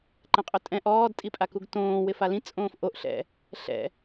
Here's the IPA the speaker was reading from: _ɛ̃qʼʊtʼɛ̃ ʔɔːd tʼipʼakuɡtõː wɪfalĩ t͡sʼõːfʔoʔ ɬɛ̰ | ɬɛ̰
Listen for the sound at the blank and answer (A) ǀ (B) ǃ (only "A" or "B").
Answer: B